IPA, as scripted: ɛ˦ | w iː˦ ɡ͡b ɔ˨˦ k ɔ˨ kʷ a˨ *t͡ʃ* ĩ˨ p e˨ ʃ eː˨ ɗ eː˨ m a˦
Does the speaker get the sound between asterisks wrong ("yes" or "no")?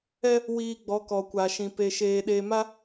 yes